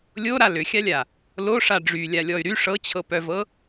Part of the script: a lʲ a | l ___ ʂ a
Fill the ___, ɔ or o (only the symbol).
o